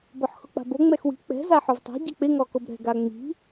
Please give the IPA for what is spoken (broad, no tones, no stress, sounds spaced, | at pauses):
b ɔ ħ x ʊ k͡p a̤ b o ŋ͡m ɛ x w i̤ k͡p ɛ̤ z a ħ ʊ v tˤ a̤ ɟ ɛ k͡p ɪ ŋ ɔ k o b ɾ ɛ̤ ɡ a ŋ͡m i̤